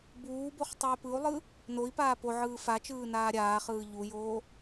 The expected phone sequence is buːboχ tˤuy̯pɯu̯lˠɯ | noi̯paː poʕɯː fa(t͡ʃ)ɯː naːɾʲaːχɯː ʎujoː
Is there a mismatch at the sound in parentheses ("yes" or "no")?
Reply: no